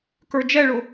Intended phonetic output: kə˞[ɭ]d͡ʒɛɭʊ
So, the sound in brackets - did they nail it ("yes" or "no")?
no